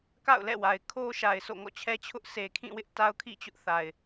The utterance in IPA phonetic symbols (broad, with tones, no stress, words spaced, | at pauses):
ka̰˦˨ʊ̯lɛ̰˦˨wa˨ɪ̯ kʰo˦ʃa˨ɪ̯ so̰˦˨ŋɔ̰˦˨t͡ɕʰɛ˦t͡ɕʰʊ˦ʔ sʰe˨kʰĩ˦˨wɪ˦ʔ ta˦ʊ̯kʰḭ˦˨ t͡ɕʊ˦ʔθa˨ɪ̯